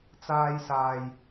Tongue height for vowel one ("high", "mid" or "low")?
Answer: low